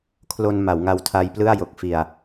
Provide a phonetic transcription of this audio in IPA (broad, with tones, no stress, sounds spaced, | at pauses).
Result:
kʰ l o˧ n m a˩˦ w ŋ a˧ w tʰ a˧ j p l ɯ˥˩ a̯ j o˨˩ k̚ f i˨˩ a̯